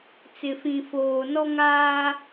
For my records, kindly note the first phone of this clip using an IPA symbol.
t͡s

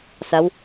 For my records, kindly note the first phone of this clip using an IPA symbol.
s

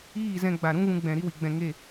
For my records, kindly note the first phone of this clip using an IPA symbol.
iː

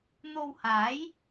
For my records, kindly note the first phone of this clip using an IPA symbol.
n̪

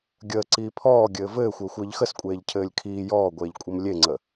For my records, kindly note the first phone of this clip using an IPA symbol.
ɡʲ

